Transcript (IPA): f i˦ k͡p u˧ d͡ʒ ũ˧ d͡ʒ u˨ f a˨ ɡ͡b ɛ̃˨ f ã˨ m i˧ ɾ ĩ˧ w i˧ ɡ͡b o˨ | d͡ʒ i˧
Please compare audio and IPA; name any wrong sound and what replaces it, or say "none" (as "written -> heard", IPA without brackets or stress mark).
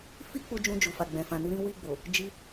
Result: m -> n